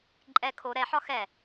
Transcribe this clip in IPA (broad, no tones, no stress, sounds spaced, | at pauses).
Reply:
ǃʼ ɛ kʰ o ɾ ɛ ħ ɒ x ɛ